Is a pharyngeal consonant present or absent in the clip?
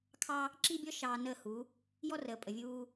absent